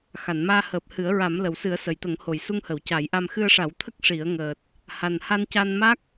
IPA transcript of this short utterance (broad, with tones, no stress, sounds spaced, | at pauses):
x a˨˩˨ n m aː˧ h əː˨˩ p̚ h ɨ˨˩˦ ə̯ ɹ a˨˩˦ m l ə˨˩˨ w s ɨ˨˩˦ ə̯ s ə˨˩˨ j t̪ ə˨˩˦ ŋ h o˨˩˨ j s u˧ ŋ h ə˨˩˨ w c a˨˩˦ j ʔ a˧ m x ɨ˧ ə̯ ʂ a˨˩˦ w t̪ʰ ə˦˥ k̚ ʂ i˨˩˦ ə̯ ŋ əː˨˩ t̚ | h a˨˩ n h a˧ n c a˧ n m a˦˥ k̚